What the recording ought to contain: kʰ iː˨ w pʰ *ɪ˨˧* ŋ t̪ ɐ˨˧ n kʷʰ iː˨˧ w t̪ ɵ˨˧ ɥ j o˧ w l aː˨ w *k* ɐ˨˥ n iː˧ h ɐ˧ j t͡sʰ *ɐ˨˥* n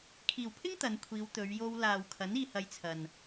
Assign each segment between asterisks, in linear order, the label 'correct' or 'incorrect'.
incorrect: ɪ˥, incorrect: kʰ, incorrect: ɐ˨

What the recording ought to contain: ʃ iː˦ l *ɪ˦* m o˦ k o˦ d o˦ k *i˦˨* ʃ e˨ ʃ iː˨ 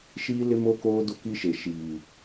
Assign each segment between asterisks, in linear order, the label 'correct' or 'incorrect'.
correct, incorrect: i˦

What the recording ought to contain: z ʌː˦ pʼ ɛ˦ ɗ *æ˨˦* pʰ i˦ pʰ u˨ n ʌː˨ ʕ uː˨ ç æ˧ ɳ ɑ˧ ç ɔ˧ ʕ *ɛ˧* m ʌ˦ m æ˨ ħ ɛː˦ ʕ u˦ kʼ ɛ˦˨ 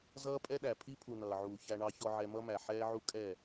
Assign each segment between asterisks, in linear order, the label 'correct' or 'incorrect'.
incorrect: æ˨, correct

